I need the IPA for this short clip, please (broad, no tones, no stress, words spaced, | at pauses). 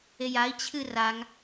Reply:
ejai̯ t͡ɕʰɨ raŋ